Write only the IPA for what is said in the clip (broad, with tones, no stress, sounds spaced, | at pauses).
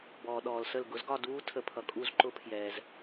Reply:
b ɔː˨ ɗ ɔː˨ l s ə˥˧ l ɡ ʊ˩˥ z ɡ ɒ˥˧ d uː˦˥ tʰ ə˦˥ pʰ ʌ˨ kʼ u˥˧ z ǃ ʊ˦˥ pʰ j ɛː˨ z